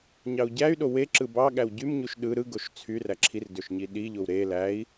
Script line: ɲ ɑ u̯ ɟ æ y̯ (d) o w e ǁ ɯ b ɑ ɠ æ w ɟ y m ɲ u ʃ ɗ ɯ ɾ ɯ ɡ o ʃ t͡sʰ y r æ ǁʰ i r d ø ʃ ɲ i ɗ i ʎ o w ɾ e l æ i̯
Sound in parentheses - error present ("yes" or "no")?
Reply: yes